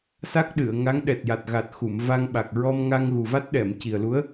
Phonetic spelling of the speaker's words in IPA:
sa˦˥k̚ɗɨ˨˩˨ə̯ŋa˧˥ŋ ɗɛ˨˩t̚ja˨˩t̚ɣa˨˩t̚ xu˨˩˨mva˧ŋɓa˨˩k̚ ɹɔ˧mŋa˧ŋɣu˨˩ va˦˥t̚ɗɛ˨˩˨mci˨˩ə̯lu˧˥ə̯

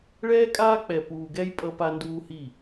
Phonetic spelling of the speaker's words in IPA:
ɭɛː˦kʼaː˦k͡pɛ˨ puː˨ɡɛ˦j pʼʌ˦pa˦nduː˦hi˦˨

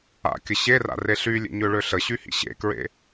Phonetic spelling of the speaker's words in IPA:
a̰kʲə ɕera̰re ɬylʲḛɲøɭø ɬəɕyhḭ ɕḛkɹḛ

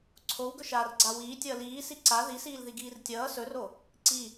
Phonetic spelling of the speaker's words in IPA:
ǀʰowɡɵʃaːrɡ͡ǀa wiːtʲʌː liːsi ǀa ðisiːlðiɡiːr tʲʌː sɵro | ǀi

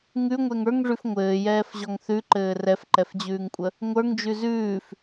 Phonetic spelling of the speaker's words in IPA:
ŋʉŋʷɛŋ ə˞ŋʐʉf ŋʷɘːjɛːfʑɔŋ θʉǃɘː rɛfǃɛfd͡ʑʉːŋkʷʼə | ŋʷə˞ŋd͡ʒʉ zʉːf

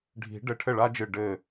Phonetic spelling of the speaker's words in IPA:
ɖʱi̤˨˩˦ɖɘ˧˩ ʈʰɘ˥˩ɭa˥d͡ʒɨ˧˩ ɖɘ˧˩

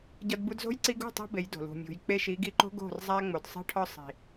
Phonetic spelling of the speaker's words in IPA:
ɟɒ˧dbu˧dzo̤˦j ǀi˧ɡṳ˦˨tˤo̤˧ be˨˦jdo̤˨lṳ˨ mʲṳ˨j k͡pe˧ʃi˨˦ ɡi˧ǃo̤˦ɡo̤˦˨r zˤæ˧ŋ͡mo˨dsˤi̤˧ʈʰɒ˧ sˤi̤˨

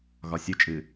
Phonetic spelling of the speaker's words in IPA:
ɣɒsʲɯ t͡ʃʼɨ

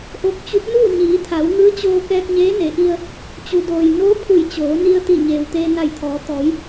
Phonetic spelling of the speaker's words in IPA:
ʔo˧˥k̚t͡ɕu˧˥p̚ nuː˥˨ɲiː˩˧ t̪ʰa˩˧wŋɯː˧˥t͡ɕoː˧ kɛː˧k̚ɲeː˧˥ne˩˧ʔi˧ə̯ | t͡ɕu˩doː˩j noː˧˥ pʰu˧˩jt͡ɕoː˩˧ni˧ə̯t̪i˧˩ ɲeː˩wt̪eː˧na˧˩jt̪ʰɔː˩˧ t̪ɔː˩˧j

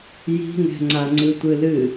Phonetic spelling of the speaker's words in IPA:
ji̤ŋɛ̤ŋ͡ǀa ŋ͡ǀɨtʷɨlɨ

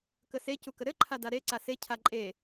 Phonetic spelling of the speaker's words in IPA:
kəse cukəɾɘǃʰa daɾe ǀase cʰaǃʼe

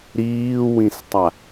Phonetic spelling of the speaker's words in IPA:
ɾiːwĩstˤa

